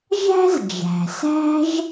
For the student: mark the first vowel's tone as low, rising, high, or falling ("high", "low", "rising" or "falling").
high